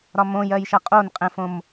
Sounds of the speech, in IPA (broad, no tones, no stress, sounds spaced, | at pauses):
ɾ ɒ m õ j ɜ j ʃ ɐ qʼ o n qʼ ɛ̃ f õ m